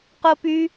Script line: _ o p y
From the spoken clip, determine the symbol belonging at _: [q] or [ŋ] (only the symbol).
q